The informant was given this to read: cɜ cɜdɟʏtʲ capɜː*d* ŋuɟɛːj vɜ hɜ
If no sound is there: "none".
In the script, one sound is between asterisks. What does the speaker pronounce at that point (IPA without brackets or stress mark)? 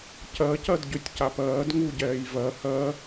d